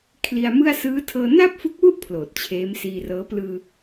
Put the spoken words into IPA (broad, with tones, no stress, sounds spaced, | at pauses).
kʰ l i˧ a̯ m ɯ˥˩ a̯ s ɯː˦˥ tʰ ɤː˧ n a˥˩ p̚ f u˦˥ k̚ w u˥˩ ʔ pʰ l oː˨˩ t̚ t͡ɕʰ eː˦˥ m s iː˧ r ɤː˦˥ p l ɯː˧